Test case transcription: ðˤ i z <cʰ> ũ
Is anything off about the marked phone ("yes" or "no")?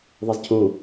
no